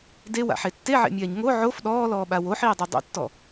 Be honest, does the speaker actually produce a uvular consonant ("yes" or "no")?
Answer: no